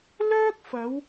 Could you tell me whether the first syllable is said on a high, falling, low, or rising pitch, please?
high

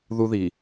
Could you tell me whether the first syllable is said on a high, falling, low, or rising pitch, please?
high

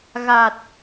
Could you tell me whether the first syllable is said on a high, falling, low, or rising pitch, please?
low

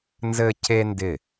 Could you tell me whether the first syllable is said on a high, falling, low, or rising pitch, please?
high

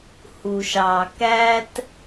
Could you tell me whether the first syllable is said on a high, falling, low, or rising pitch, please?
low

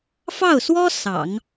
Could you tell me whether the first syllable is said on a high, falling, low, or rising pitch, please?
falling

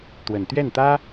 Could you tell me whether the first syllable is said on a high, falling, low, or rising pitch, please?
low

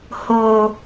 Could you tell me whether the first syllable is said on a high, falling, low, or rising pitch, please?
low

